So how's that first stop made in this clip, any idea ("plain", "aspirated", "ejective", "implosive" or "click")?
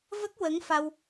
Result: plain